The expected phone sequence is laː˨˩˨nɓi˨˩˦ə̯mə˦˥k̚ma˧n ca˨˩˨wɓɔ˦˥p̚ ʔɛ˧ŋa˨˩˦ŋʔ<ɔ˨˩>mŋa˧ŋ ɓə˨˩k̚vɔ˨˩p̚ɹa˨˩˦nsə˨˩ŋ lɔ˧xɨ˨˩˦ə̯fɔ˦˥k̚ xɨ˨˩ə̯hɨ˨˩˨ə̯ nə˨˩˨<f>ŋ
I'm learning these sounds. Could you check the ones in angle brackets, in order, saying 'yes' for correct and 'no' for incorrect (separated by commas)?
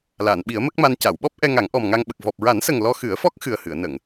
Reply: yes, no